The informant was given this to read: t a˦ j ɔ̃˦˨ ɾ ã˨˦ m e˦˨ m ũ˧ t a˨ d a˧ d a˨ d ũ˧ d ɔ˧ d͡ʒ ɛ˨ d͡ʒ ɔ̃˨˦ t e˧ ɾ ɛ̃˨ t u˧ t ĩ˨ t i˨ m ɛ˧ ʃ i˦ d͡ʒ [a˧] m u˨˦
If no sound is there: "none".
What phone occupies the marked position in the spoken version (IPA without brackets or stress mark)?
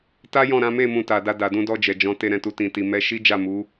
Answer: a˦˨